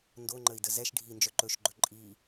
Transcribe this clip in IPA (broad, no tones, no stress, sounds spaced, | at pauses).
n d o ŋ͡ǃ ə i̯ d ə z ɛ ʃ ɖʱ i n d͡ʒ œ ǃ ɵ ʃ ɡ͡ǃ ɵ ǃʼ i